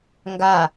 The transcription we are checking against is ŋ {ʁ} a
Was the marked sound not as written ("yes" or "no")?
yes